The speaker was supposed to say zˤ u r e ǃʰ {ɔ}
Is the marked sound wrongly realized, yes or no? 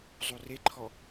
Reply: no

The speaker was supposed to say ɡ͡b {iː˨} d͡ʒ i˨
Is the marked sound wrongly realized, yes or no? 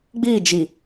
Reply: yes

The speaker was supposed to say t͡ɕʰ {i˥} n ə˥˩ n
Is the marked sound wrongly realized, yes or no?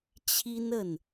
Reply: no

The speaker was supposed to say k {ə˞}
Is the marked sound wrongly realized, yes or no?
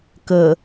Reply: yes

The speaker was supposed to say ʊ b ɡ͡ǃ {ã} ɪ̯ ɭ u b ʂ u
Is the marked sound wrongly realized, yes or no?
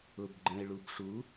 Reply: yes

